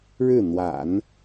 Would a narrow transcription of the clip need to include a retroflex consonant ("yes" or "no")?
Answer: yes